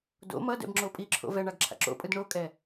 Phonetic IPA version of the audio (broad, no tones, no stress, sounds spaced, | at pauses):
d o̰ m ʌ d ɛ̰ b ŋ͡ǁ o pʼ i ǁʰ o̰ v ɛ ɳ a ɡ ǁʰ a̰ ǁ o̰ pʼ ɯ d ɳ o kʼ ɛ